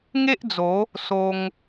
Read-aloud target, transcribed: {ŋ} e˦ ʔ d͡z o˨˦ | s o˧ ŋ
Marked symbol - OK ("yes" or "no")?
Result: yes